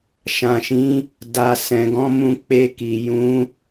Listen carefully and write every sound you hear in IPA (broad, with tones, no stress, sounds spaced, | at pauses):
ʃ ã˨ ʃ ĩ˨˦ | d a˨ s ɛ̃˨ ɡ ɔ̃˨˦ m ũ˧ k͡p e˧ k i˨ j ũ˨˦